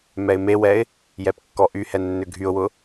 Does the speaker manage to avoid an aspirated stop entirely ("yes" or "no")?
yes